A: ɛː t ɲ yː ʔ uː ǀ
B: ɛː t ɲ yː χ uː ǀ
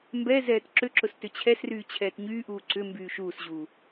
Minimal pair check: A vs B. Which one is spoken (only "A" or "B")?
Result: A